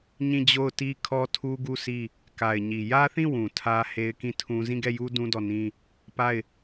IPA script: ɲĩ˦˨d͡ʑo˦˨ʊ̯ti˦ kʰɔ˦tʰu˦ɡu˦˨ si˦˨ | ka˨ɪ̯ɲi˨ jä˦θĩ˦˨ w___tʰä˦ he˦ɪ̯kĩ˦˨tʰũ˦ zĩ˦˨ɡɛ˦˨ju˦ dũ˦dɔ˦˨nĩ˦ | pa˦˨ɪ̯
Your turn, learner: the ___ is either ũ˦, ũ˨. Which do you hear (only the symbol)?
ũ˨